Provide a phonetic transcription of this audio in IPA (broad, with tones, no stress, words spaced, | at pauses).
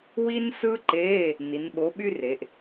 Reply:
wi˥nsɯ˥ǃeː˧˥˧ | ni˩˧nɓo˨˥ɓy˥re˩˧ʔ